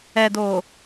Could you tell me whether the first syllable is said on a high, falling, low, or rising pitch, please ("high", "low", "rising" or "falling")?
low